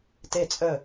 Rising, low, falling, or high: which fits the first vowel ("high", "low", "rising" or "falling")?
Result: falling